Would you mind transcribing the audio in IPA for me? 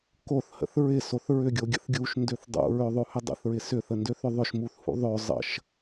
k o θ h ə̰ θ ɹ ɪ s o θ ɹ ʏ ɡʲ o ɡʲ ə̰ θ ɡʲ u ʃ n d ø θ dˤ ṵ ɹ ø ðˤ o h ʏ dˤ ə̰ θ ɹ ɪ s ʏ θ ə n d ø θ ʏ ðˤ ʏ ʃ m u θ h ṵ ðˤ ø zˤ ə̰ ʃ

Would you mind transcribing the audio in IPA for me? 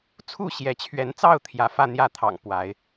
t͡sʰ u˥˨ ɕ j ɛ˨˦ t͡ɕʰ ɥ ɛ˨˦ n t͡s ɑ˥˨ ʊ̯ t̪ʰ j ä˨˦ f ä˥˨ n̪ j ä˥˨ t̪ʰ ɑ̰˨˩ ŋ p w a˨˦ ɪ̯

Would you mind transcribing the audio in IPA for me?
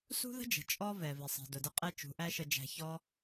s ṳ˦ ð ə̤˦ d͡ʒ ə̤˨ t͡ʃʼ ɔ˦ v ɛ˨ v ɪ˨ sˤ i̤˨ d ʊ˨ d ə˧ qʼ ɛ˦ t͡ʃ ṳ˨˦ ʔ æ˦ ʃ ə˧ d͡ʒ æ̤˧ ç ɔ˦

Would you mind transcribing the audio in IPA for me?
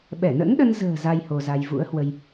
ɓ ɛ˧˩ n ə̰˧˥ n ɗ ə˧ n z ə̤ː˨˩ z a˧ j h o˧ z a˧ j v ṵ˧˥ ə̯ h w ə˧ j

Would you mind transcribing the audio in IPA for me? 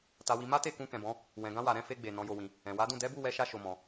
t a˧ w i˧ m a˦ t e˦˨ k ũ˧ k ɛ̃˨ b ɔ̃˨˦ | w ɛ̃˨ ɡ ã˧ w a˨ ɾ ɛ̃˨˦ f e˧ ɡ͡b e˨ n ɔ̃˨˦ j o˧ w ĩ˧ | ɛ̃˨ w a˨˦ d ũ˦˨ d ɛ˨˦ b u˦˨ w ɛ˨˦ ʃ a˧ ʃ o˧ m ɔ̃˧

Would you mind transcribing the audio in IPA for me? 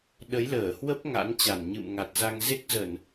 ɗ ə˨˦ j l əː˧˩ h w ə˦˥ p̚ ŋ a̰˧˥ n t͡ɕ a˧˩ n ɲ ɨ̰˧˨ m ŋ a˨˩ t̚ z a˧ ŋ z e˦˥ k̚ z ə˧˩˨ n

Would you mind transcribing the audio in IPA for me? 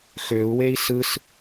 x ø u̯ w e i̯ s ɯ s

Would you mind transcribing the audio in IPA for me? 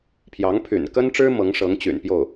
pʰ j ɑ˧˥ ŋ pʰ y̰˨˩ n k ə˥ n ʈ͡ʂ ɻ̩˥ m ɤ˧˥ ŋ ʂ ɤ˧˥ ŋ t͡ɕ y̰˨˩ n p j o˥˩ ʊ̯

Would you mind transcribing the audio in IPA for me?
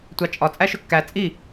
tʷ ɑ t͡ʃʼ ɒ t͡sʼ æ ʃ ɵ kː æ t͡sʼ i

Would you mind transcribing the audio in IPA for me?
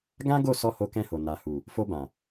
ɡ ã˦ ɡ o˦˨ s ɔ˧ h o˧ k ɛ̃˧ h o˨ n a˨ h u˨ | f o˧ b ã˨

